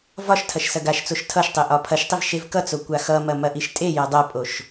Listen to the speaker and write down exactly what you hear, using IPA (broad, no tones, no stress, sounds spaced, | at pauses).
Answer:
v ɒ ʃ tʰ ɐ ʃ s ɐ ɡ a ʃ t͡s o ʃ tʰ ʌ ʃ tˤ e ʔ ɒ pʰ ɐ ʃ tˤ i v ʃ e v k ʌ t͡s o kʷ a x ʌ m ɐ m ɐ ʔ i ʃ tʼ e j ɐ dˤ ɐ pʼ o ʃ